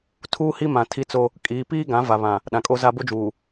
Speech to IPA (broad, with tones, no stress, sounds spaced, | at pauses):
tʰ uː˦ h i˦ m ã˨ tʰ i˦ t͡s o˦ | kʼ iː˨˦ p iː˦ ɡ ã˨˦ v a˨ β ã˨ | ɗ ã˨ kʼ o˦ z a˦ b o˦ d͡ʒ uː˨